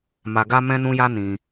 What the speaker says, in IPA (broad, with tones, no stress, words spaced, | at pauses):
ma˧ɡa˦ mɛ̃˦nũ˦ja˦ nĩ˦